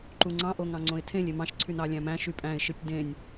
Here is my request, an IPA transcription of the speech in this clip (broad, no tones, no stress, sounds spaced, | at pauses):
ǃ u ŋ͡ǀ ɑ̃ ʔ o ŋ ɑ̃ ŋ͡ǀ õ ɪ̯ tʰ ẽ lʲ e m ɑ̃ ʃ ǀʰ y n ɑ lʲ æ̃ m æ̃ ʃ y pʼ æ̃ ɪ̯ ʃ ɯ tʲ d ẽ nʲ